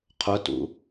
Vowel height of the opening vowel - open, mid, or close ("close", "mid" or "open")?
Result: close